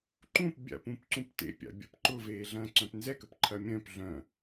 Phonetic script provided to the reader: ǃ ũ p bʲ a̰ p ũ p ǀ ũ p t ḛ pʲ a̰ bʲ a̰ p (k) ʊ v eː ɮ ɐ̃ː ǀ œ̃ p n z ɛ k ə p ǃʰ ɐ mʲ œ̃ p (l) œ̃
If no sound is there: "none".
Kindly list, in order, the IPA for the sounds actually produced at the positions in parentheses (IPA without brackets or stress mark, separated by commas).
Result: ǃ, ɮ